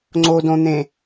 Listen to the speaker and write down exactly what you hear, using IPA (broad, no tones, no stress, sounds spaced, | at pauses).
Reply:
ŋ͡ǀ o d õ n̪ ẽ